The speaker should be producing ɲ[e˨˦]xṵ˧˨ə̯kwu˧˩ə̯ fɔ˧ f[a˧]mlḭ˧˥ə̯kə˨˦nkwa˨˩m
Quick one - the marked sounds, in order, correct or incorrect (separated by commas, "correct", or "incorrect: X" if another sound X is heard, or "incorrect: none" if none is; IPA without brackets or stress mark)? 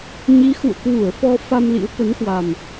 incorrect: i˨˦, correct